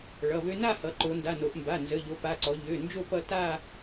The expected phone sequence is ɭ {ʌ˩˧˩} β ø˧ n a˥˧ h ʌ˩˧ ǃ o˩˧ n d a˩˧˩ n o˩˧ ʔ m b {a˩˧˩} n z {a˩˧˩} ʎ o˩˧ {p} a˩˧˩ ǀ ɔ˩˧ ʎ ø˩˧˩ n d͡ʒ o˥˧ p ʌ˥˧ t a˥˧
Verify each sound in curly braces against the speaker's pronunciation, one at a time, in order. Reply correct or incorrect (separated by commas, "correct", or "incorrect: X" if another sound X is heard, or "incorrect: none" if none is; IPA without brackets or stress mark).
correct, correct, incorrect: ə˩˧˩, correct